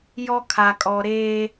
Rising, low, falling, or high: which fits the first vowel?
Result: high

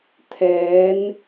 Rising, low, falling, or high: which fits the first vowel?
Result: rising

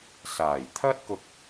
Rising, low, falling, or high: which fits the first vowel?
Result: low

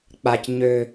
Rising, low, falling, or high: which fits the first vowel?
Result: high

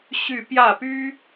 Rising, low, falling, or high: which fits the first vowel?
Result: falling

